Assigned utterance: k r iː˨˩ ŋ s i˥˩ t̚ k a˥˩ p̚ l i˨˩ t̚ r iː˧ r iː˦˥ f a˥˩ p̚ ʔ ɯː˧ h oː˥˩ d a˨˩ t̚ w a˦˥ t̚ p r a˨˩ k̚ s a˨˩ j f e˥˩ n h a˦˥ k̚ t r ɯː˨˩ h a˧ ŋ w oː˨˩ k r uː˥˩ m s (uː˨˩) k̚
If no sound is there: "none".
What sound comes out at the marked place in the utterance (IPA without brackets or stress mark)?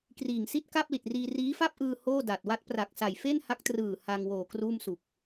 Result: u˨˩